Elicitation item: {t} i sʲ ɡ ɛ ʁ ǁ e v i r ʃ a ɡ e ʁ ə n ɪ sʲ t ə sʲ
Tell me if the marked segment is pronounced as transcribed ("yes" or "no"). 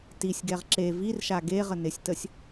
yes